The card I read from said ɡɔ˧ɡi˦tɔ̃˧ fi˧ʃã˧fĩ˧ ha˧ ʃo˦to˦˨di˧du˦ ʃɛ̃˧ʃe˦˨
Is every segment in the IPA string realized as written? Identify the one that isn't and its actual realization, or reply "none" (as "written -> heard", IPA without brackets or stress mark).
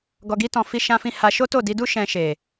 e˦˨ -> e˨